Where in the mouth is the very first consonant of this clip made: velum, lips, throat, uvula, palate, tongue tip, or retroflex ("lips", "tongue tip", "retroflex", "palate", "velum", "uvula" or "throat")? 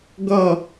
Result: velum